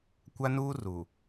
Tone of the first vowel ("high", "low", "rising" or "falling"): high